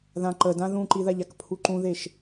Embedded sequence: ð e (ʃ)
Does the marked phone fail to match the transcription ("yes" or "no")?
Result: no